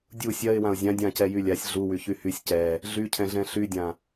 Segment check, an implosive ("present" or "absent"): absent